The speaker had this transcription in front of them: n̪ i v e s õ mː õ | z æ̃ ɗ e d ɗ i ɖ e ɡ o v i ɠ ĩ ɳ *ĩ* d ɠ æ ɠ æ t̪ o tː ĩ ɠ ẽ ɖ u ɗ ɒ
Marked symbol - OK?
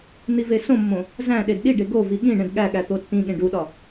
no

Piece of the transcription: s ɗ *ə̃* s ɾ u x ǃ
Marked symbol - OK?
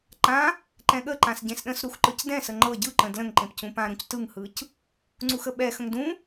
yes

